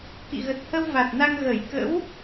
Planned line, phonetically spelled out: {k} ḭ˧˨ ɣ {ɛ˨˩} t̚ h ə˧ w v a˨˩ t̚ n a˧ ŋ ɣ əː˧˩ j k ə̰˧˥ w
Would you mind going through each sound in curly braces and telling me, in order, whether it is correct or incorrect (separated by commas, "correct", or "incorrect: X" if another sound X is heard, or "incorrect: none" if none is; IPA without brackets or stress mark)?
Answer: correct, incorrect: ə˨˩